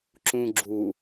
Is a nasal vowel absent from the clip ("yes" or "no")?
no